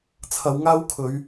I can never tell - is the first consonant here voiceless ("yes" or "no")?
yes